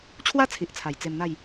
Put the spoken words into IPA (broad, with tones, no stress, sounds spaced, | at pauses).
t͡ɕʰ w a˦ t͡sʰ i˨ ʔ t͡sʰ a˨˩ j t͡s e˧ m n̪ a˥˧ j